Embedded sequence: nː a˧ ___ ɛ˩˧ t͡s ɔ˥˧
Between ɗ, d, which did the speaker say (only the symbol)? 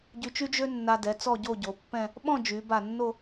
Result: d